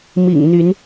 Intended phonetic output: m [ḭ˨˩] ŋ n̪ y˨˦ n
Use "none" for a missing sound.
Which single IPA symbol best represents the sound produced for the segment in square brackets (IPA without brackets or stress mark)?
ḭ˨˩